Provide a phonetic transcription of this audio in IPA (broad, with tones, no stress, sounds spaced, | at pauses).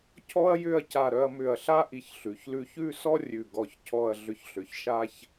cʰ ɔ˥ ɐ̯ j ʏ˥˧ ɐ̯ c a˧˩ ɾ œ˧ ɐ̯ m ʏ˧˩ ɐ̯ ɬ a˥ ʔ i˧ ç ɬ ʉ˩˧ ç l ʉ˧ ç ʉ˥˧ s ɔ˥ rʲ ʉ˧˩ ɡ ɔ˧˩ ç cʰ ɔ˥˧ ɐ̯ ɮ ʏ˧˩ ç ɬ ʏ˩˧ ç ʃ a˥ ç